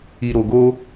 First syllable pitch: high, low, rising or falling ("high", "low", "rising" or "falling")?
low